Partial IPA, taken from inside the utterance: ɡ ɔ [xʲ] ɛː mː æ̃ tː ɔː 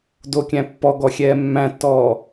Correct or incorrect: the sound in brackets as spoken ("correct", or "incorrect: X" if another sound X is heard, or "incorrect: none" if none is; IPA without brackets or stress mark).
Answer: correct